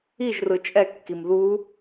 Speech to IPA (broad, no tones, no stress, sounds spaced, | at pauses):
i ʒ r ɯ t͡ʃʼ ɛ kː i m ð u